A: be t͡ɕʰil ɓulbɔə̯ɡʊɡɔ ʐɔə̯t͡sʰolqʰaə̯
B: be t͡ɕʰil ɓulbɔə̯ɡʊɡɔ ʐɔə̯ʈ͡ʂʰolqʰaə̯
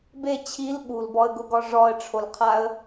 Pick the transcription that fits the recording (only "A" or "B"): B